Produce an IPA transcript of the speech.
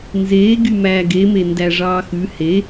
n z eː ɡ y m æː ɡ e m e n d æ ʐ ɑː x ʉ h e

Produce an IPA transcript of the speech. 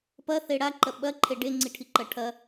p ɐ θ e ɽ a ǃ ɐ ɓ ɐ ǃʰ e ɖ e ŋ͡ǀ i ʈʰ i ǃ ɐ ʈʰ ɐ

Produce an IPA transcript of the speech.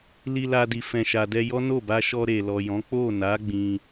l i˧ l a˧ d i˨ f ɛ̃˨ ʃ a˨ d ɛ˧ j ɔ˦ n o˦˨ b a˧ ʃ ɔ˧ ɾ e˨ l ɔ˨ j ɔ̃˨˦ k͡p o˦˨ n a˨˦ ɡ͡b ĩ˧

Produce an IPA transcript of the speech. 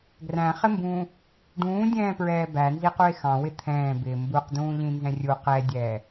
ɡ r æ̃ χ ɪ m b ũː | ɖ ũː dʲ ɛ̃ː p ɹ ɛː b æ n z i q u e̯ x ɑ̃ w ɪ t̪ʰ ɛ̃ː b ɪː m b u q d ũː ʎ ĩ n z ɛ̃ rʲ u q ɛ dʲ ɛː

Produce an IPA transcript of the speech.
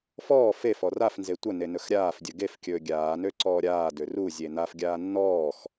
f ɔː f e f ɔ r a f n z e tʷ ə n e n ɵ x ɾʲ aː f dʲ ɵ ɡ e f kʲ ɵː ɡʲ aː n ø ǀ ɔː ɾʲ aː d ø r u zʲ e n a f ɡʲ aː nː ɔː x

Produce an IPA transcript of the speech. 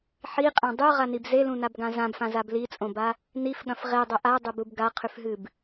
ħ i qʼ ã dˤ ʉ ʁ a n i b z e l ũ n a b ɡ ã z ã b f ã z a b l i t͡sʼ õ b a | n i f ɠ ɐ̃ f ʁ e dˤ ɵ ʔ a dˤ e b u b ɡ a qʰ ʉ f ɦ ɨ b

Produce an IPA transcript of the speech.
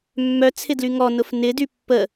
mː œ t͡sʰ ɪ d l y ŋ ɔ n ʊ f n ɪ d y pː ə

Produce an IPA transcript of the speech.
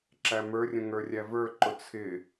ǁ æ m ə˞ rʲ ə̃ ŋ ə˞ rʲ æ v ə˞ ǃ ʊ t͡sʰ ɪ

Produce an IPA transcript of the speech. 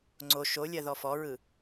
ŋ͡ǀ o ʃ o lʲ ɜ ð ɔ f ɔ ɹ ɯ

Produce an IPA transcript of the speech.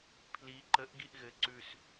pʰ l i ǃ ə ʔ ɡ i ʔ ɣ ɘ ǀ ʉ s

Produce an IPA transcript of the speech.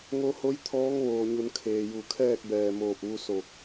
ŋ o˧ h o˧˥ j t̪ʰ ɔː˧˥ ŋ ʋ oː˩ ɲ u˩˧ n kʰ eː˩ j u˧˩ kʰ ɛː˥˨ k̚ b ɛː˧˩ m oː˧˩ p̚ ʋ u˧ s o˧˩ k̚

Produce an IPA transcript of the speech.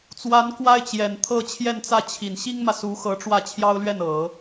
t͡s w a˧˥ n k w a˥ ɪ̯ t͡ɕ j ɛ˨˩ n t̪ʰ ɤ˥˧ t͡ɕʰ j ɛ˥˧ n t͡s ä˥˩ t͡ɕʰ i˨˩ n ɕ i˥ ŋ m ä˨ s u˧˥ x ɤ˧˥ ʈ͡ʂ w ä˥˩ t͡ɕʰ j ɑ˥ ʊ̯ l ɥ ɛ˥˩ n ɤ˨˩˦

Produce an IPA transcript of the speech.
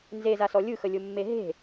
n z e z a s ɔ lʲ ɯ x ə lʲ ʊ mː e ɦ e̤

